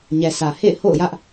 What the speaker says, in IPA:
ɲ ɛ˨ sʰ ä˨ h ḛ˦˨ ɪ̯ h o̰˦˨ ʊ̯ j ä˦ ʔ

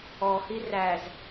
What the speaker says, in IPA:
ɔ h i r æ z

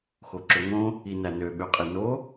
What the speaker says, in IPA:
x o ǁ ø ŋ õ | i n æ n ø ɓ ø qʼ i n o

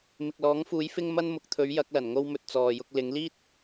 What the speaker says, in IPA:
m ɪ˨ k̚ l ɔː˨˥ ŋ f uː˨˥ j f ɪ˥ ŋ m ɐ˥ n m ʊ˨˥ k̚ t̪ʰ ɵ˨˥ ɥ j ɐ˨˥ k̚ l ɐ˨˩ n ŋ o˧ w m ɵ˨ t̚ t͡s ɔː˨ j ʊ˧ k̚ l ɪ˨˥ ŋ l iː˥ t̚

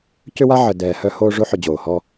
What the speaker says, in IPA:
c ʏ˦ w a˦ ʕ ə˨ d ɛː˨ h œ˦ h oː˦ ʐ o˦ ħ ʏ˨ d͡ʑ oː˨ h ɔ˦

